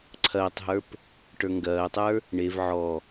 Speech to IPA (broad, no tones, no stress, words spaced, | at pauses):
ǀʰɐːtˤɦə˞p | ʈə˞ŋɡɐːtˤə˞ | ɳev ʕɔ